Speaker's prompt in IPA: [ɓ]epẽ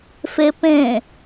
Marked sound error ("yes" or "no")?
yes